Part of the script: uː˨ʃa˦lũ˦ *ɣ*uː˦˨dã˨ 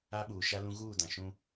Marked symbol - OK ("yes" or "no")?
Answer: yes